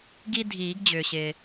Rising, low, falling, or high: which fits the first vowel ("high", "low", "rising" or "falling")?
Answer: high